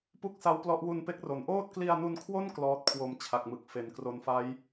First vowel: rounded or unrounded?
rounded